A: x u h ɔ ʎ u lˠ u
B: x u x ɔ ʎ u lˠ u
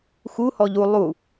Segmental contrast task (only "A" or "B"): A